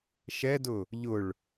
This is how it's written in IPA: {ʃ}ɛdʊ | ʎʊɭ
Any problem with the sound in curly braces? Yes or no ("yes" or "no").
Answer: no